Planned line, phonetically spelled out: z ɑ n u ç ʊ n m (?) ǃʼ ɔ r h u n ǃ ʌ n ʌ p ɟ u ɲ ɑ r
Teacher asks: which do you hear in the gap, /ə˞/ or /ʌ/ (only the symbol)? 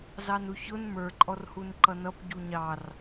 ə˞